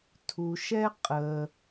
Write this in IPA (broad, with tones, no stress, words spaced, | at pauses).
tʰu˩ʃɛ˥ qʼə˩